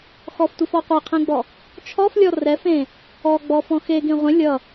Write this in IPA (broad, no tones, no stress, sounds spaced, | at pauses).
x ɔ f tʷ i f ɔ qʷ e qʰ ẽ ɡ͡b ɔ | t͡ʃʰ ɔ f lʲ ɔ r ɛ f ẽ | ɔ ɡ͡b ɔ f ɔ̃ x e ɡ ẽ ʁʷ ẽ lʲ ʌ